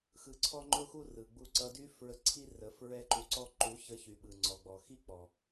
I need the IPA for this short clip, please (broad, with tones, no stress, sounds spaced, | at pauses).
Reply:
x ɯ˧ ǀʰ ɔ˦ ŋ͡ǃ ʊ˦ x u˦ r ɯ˨ ɡ͡b u˧ ǀ ʌ˧ d y˦ f ɹ ə˧ ǀʰ i˦ r ə˨˦ f ɹ ɛ˦ ǃ u˧ ǀ ɔ˦ ǃ u˨˦ ç ə˧ ç y˨ ɓ ɯ˨ ŋ͡ǀ ɔ˨ ɡ͡b ɔ˨ x i˦ k͡p ɔ˨